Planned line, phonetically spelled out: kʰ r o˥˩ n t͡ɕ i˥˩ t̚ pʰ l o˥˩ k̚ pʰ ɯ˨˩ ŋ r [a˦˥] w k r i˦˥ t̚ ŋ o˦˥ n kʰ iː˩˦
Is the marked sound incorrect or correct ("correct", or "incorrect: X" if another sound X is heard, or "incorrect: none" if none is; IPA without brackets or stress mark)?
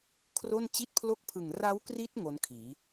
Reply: correct